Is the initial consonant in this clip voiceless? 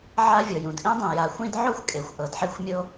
no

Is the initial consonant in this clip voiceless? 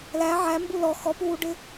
no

